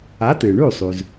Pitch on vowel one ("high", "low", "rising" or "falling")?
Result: rising